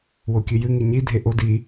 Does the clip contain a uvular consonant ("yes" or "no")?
no